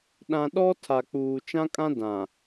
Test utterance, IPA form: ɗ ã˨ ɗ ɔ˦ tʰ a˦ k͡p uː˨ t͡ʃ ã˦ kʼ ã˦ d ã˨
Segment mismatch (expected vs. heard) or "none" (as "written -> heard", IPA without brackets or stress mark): a˦ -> a˨